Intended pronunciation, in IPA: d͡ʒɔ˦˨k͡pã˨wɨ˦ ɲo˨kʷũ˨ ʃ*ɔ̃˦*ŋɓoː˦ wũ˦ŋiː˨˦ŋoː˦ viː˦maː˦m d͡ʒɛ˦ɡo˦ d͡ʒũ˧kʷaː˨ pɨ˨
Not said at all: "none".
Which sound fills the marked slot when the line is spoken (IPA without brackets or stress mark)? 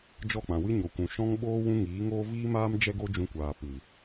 ɔ̃˦